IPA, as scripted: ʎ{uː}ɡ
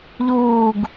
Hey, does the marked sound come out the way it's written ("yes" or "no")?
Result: yes